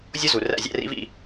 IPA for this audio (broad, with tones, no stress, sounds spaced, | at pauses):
zʲ o˥ z u˩ r æ̰˥˩ zʲ æ̰˧ r ḭ˩˥ v ḭ˧